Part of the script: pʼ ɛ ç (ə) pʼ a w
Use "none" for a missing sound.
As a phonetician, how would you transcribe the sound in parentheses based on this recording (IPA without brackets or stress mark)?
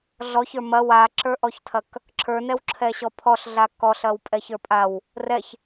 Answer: ə˞